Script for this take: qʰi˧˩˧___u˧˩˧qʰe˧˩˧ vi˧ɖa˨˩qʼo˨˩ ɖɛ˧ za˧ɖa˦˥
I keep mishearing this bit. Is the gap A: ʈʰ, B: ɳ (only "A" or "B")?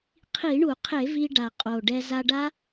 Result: B